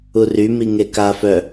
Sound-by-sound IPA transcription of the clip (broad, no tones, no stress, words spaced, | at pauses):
ury miŋeka fœ